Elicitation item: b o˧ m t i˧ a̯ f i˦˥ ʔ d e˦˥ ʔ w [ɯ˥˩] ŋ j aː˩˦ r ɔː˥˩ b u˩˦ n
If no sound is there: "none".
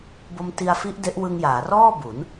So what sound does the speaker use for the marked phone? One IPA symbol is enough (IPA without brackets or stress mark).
ɯ˧